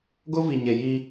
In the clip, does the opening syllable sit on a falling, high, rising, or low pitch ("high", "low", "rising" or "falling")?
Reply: high